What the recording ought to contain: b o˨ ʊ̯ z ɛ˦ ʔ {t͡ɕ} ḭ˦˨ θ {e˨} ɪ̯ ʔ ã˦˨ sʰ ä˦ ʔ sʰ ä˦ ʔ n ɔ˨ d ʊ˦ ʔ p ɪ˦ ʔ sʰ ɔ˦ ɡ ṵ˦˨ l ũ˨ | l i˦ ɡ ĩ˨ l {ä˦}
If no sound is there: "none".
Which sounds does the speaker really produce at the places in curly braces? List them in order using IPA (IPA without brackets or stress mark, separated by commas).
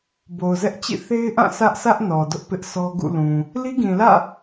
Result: t͡ɕ, e˦, ä̰˦˨